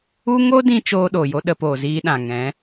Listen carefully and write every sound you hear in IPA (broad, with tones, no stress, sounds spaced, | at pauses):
u˦ ŋ o˦ d ĩ˧ t͡ʃ oː˦ ɗ o˨ j o˦ ɗ ə˧ p oː˨ z iː˦ ɗ ã˨ ŋ ɛ̃˨˦